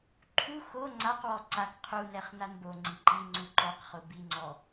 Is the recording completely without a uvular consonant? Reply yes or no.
no